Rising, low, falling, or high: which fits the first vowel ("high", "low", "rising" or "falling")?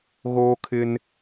high